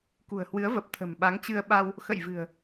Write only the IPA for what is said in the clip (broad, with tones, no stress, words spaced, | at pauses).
kṳ˨˩ə̯hwɨ˨˦ə̯və˨˩p̚ t̪ʰə̤˨˩mɓa˨˦ŋt͡ɕɨ˧ə̯ɓa˧w | xə̰˧˨jvɨ̤˨˩ə̯